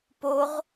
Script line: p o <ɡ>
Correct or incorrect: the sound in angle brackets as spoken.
incorrect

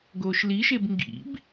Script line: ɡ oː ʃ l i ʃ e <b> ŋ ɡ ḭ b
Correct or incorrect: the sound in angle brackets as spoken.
correct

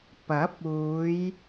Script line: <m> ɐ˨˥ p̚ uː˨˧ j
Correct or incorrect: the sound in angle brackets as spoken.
incorrect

